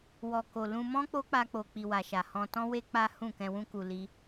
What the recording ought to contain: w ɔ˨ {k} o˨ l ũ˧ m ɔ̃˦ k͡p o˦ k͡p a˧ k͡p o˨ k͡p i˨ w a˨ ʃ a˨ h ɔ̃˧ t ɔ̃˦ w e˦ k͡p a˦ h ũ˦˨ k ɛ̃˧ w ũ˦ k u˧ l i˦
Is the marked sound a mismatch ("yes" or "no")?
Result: no